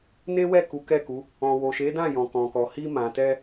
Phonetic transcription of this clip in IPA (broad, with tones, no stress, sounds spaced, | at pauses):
n e˦ w ɛ˦˨ k u˨˦ k ɛ˦˨ k u˨˦ | ɔ̃˨ w o˨ ʃ e˨˦ d ã˦˨ j ɔ̃˨ k ɔ̃˨ k ɔ˨ h i˧ m ã˨ t ɛ˧